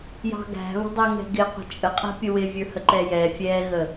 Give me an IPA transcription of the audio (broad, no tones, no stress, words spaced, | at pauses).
jɑ̤ɡæ̤βə̤dˤɛ ŋɛ̤ɡɪ qʷə̤t͡ʃʼəqʼɛ̤pʲə wɪ vʲə˞həǃɛjɛ fʲɛɣə